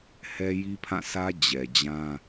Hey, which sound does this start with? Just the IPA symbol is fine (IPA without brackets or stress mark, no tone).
h